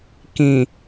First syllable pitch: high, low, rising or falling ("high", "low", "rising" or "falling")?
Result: low